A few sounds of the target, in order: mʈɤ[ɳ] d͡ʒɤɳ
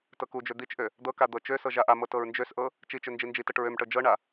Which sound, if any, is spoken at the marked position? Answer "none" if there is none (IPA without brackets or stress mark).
none